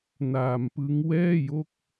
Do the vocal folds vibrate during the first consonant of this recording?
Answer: yes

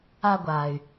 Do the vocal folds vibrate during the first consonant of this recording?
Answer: yes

